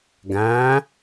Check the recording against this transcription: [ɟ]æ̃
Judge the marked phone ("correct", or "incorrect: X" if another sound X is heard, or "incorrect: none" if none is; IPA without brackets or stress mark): incorrect: ɡ